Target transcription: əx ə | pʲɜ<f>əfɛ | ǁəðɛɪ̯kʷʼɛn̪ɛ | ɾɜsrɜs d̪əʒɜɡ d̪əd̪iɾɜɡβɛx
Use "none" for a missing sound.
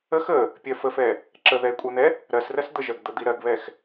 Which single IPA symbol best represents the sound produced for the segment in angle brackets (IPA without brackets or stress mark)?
f